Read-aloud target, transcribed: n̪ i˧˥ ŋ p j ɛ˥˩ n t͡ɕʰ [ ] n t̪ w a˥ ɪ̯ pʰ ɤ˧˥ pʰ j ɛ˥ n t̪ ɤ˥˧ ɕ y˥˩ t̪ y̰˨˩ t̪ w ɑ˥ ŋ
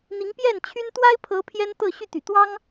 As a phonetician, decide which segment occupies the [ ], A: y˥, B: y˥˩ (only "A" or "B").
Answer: A